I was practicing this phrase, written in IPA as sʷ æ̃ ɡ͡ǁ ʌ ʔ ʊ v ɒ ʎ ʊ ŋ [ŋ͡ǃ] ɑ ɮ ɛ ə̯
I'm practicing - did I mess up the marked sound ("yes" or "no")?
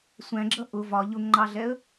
no